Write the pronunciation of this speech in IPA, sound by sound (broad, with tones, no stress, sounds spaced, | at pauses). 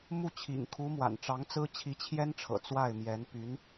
m u˥˩ t͡ɕʰ ḭ˨˩ ŋ kʰ u˧˥ m w a̰˨˩ n ʈ͡ʂ ɑ˧˥ ŋ t͡s ɹ̩˥ t͡ɕʰ i˧˥ t͡ɕʰ j ɛ˥ n ʈ͡ʂʰ ɤ̰˨˩ t͡s w a˥˩ ɪ̯ m j ɛ˧˥ n p y˧˥ n